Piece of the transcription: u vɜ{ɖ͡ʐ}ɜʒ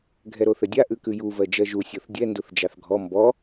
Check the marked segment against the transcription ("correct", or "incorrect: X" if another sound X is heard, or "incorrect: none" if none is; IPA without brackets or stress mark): incorrect: d͡ʒ